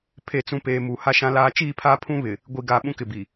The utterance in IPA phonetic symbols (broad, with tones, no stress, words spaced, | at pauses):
pʰe˨t͡sũ˨ peː˨mu˨ ha˦ʃã˦laː˦ t͡ʃiː˦˨pʰaː˦pʰũ˦ βɪ˨ | ɡʷi˨ɡa˨ ɓũ˦kɪ˨bi˨